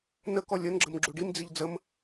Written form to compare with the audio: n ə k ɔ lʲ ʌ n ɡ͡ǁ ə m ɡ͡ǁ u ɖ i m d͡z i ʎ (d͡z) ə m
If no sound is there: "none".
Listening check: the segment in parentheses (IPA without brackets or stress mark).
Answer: d͡z